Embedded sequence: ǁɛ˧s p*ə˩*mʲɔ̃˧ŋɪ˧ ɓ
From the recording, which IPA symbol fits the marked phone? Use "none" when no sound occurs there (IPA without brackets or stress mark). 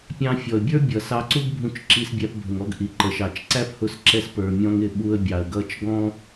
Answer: ə˞˩